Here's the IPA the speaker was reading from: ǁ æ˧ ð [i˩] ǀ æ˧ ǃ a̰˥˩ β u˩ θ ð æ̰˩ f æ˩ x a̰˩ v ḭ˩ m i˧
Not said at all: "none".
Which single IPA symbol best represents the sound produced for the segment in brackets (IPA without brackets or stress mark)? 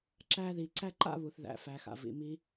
i˩